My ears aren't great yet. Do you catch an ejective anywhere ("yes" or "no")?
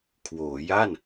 no